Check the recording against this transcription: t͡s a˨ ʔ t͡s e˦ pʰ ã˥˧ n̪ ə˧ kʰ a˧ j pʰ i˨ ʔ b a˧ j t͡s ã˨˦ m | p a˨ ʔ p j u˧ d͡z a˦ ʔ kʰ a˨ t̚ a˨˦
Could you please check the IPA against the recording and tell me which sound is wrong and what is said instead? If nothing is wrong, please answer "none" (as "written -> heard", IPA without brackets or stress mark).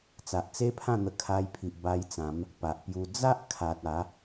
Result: none